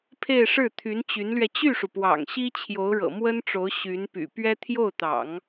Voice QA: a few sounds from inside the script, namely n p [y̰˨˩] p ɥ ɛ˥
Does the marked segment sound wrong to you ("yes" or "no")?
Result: no